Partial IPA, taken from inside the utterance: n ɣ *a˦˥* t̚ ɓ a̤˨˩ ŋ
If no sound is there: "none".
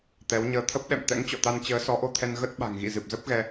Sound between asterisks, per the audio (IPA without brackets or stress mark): ə˦˥